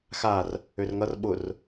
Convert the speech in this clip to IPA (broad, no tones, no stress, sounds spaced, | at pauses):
x a r | ø r ŋ ʌ r ɓ ʊ r